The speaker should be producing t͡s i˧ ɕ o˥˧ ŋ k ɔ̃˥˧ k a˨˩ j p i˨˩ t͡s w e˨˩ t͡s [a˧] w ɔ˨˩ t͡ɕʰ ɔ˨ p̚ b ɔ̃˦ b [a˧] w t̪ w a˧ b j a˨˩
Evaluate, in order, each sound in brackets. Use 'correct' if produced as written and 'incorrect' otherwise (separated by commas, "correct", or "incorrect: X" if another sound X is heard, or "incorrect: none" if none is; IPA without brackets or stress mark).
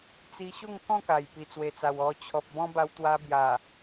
incorrect: a˨˩, correct